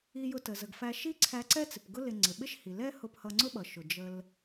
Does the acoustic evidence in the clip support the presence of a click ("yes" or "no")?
yes